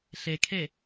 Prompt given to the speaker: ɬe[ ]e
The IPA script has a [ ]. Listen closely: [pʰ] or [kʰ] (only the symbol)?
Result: kʰ